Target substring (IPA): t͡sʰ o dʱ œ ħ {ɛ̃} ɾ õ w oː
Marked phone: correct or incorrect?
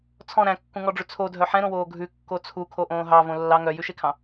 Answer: correct